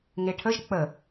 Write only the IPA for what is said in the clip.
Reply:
ŋ e ʈʰ ə ʒ k͡p ə

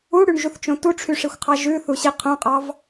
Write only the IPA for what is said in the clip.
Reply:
u ɽ y ɳ ʒ u θ t͡ʃ õ t u ʈ͡ʂʰ y ʂ i xʷ qʰ ɑ ʒ ʉ θ u ɕ i qʰ õ qʼ ɑ v

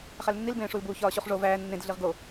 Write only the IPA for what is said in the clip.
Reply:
χ æ l nː i l b ẽː ʂ u l b uː ç ɒː ɕ u χ ʐ o v æː nː ẽ d ɮ i ʁ ɡ o

